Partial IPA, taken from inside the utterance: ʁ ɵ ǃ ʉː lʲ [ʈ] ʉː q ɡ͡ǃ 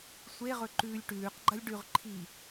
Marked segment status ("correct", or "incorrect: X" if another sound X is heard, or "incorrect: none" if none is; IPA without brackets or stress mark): correct